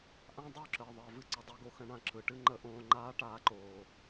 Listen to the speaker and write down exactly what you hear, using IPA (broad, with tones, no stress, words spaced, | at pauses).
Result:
ʔã˦dˤo˦˨ǁəː˨ ðˤəː˧vɨ˦ ǀə˧dˤɨ˦ɡo˦xə̃˦ ɳã˧ ǁɯ˨ʈɨ˦ ŋ͡ǃə˧ʔõː˧ ŋ͡ǃaː˦ʈaː˧ǃoː˨